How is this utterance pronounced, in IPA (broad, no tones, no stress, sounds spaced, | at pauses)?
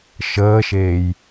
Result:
ʃ əː ʃ eː j